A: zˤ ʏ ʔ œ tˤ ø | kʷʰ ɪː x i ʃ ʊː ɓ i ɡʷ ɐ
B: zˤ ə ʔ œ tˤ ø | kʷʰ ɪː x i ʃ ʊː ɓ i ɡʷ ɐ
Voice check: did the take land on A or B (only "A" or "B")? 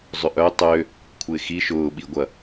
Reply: A